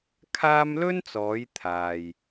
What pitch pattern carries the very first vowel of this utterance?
high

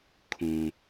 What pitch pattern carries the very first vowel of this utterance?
low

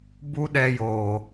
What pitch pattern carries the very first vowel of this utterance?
high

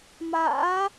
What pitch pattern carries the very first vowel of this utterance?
rising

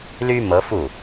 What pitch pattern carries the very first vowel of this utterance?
high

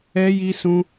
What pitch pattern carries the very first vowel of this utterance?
high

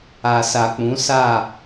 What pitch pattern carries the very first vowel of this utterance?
low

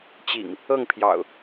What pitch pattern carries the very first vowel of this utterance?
low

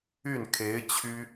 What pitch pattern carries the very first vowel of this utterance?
falling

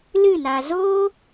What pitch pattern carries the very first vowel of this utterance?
falling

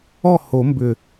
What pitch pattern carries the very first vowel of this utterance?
falling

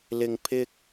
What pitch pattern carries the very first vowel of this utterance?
low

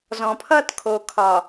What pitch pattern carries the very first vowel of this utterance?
low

